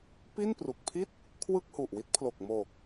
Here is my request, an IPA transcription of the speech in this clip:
p i˥˩ n p r u˨˩ k̚ pʰ i˥˩ t̚ | kʰ w ɯ˥˩ k̚ h u˨˩ ʔ w i˦˥ t̚ pʰ l o˨˩ k̚ m o˨˩ k̚

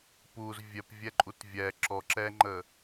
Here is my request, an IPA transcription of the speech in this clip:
p u z vʲ ɛ p vʲ ɛ ǃʼ u t vʲ ɛ ǁ ɔ ǁ ɛ ŋ͡ǃ ə

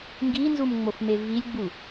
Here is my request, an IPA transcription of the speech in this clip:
ŋ ɡ i n z u m ŋ͡m o f m e v i lʲ ɡ͡b u

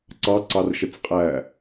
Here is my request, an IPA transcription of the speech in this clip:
ǀ ɑ ǀ ɑ r ʃ ə t͡s qʼ æː

